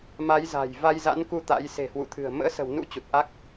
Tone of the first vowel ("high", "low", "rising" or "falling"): rising